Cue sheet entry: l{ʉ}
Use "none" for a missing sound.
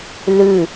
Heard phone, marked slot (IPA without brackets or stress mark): ʉ